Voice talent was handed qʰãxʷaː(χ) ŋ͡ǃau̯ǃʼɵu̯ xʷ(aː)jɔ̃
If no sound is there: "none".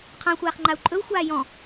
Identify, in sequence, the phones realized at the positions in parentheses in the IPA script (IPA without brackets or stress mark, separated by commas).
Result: χ, aː